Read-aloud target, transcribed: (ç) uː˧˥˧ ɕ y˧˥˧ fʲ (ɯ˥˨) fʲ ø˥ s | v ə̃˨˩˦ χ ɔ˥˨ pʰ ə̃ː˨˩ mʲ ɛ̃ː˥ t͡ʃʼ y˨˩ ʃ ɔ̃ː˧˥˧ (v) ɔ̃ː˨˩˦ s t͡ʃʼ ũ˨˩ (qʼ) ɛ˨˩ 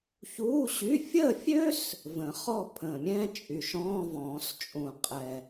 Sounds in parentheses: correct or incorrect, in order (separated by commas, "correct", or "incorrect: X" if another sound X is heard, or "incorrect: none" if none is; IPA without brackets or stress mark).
correct, incorrect: ə˥˨, correct, correct